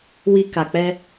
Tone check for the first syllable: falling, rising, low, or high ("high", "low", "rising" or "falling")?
low